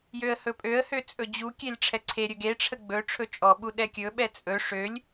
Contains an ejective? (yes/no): yes